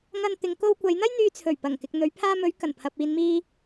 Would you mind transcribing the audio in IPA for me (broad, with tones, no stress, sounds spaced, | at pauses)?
ŋ ɐ˧ n t̪ ɪ˨˧ ŋ k o˧ w kʷ ɐ˨˧ j n̪ ɐ˥ j n̪ yː˧ t͡sʰ ɵ˨˩ ɥ p ɐ˨˩ ŋ k ɪ˨ k̚ n̪ ɵ˨˧ ɥ pʰ aː˧ m ɵ˨˧ ɥ k ɐ˨˩ n pʰ ɐ˨ p̚ iː˨ n m iː˧